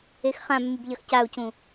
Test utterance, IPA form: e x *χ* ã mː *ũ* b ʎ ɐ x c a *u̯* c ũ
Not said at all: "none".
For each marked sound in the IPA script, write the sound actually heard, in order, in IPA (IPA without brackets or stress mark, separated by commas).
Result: χ, u, u̯